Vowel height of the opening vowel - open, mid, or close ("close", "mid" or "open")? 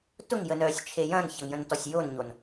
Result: close